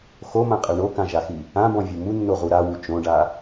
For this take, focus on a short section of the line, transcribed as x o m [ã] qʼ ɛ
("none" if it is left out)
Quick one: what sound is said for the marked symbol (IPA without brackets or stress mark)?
ã